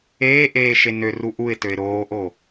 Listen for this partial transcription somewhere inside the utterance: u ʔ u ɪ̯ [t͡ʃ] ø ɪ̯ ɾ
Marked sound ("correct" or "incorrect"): incorrect